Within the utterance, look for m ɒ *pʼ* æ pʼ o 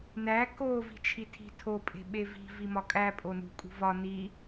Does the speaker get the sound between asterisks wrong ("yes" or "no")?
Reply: yes